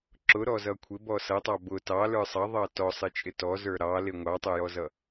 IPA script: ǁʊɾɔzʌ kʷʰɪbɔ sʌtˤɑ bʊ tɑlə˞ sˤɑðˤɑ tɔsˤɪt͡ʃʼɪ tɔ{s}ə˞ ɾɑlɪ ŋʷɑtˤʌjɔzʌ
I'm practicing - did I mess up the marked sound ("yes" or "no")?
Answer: yes